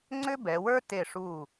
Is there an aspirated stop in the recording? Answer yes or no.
no